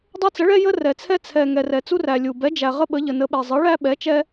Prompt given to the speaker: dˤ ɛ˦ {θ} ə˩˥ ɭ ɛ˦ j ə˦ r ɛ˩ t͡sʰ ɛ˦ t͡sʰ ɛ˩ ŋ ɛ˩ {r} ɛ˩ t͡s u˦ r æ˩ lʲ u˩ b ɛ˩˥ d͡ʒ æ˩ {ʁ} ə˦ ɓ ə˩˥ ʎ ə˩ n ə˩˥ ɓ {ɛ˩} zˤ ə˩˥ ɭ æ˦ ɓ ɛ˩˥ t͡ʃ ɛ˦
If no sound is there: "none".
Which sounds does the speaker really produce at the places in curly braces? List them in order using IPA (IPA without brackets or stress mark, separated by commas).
t͡s, r, ʁ, ɛ˩